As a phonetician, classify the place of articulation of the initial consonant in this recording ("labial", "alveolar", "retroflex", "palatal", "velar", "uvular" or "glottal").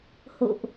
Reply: glottal